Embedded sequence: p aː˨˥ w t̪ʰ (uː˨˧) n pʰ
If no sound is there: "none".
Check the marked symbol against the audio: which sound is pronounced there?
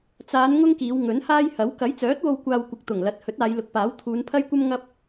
uː˨˧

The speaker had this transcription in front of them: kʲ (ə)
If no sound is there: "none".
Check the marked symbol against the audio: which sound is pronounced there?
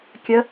ə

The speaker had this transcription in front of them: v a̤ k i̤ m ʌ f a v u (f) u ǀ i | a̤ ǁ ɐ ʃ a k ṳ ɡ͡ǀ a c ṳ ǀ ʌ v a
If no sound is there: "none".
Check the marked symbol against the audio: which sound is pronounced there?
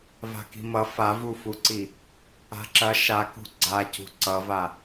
f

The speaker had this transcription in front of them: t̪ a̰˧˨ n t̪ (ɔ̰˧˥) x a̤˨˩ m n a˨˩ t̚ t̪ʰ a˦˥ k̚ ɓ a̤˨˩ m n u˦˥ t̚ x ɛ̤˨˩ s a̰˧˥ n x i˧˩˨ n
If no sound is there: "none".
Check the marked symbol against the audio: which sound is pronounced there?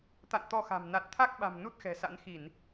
ɔ˧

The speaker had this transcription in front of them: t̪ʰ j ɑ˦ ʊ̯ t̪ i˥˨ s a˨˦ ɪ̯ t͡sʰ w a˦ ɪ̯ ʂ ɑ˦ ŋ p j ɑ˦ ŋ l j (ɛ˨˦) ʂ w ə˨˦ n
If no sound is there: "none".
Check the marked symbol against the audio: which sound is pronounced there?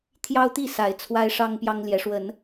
ɛ˨˦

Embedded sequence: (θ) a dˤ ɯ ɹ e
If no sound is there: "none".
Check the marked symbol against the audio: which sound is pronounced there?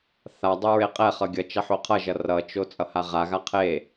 θ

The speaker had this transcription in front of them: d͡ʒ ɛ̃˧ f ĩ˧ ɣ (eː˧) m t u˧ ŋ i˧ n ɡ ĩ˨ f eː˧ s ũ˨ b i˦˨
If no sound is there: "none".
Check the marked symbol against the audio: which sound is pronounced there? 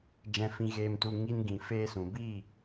eː˧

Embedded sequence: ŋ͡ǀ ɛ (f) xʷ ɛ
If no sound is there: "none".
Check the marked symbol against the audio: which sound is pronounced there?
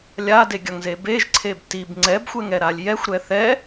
b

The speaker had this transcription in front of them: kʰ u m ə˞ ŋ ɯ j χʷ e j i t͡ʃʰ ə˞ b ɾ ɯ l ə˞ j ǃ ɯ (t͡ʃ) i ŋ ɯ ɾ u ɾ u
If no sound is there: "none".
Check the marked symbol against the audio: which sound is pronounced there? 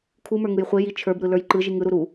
ʒ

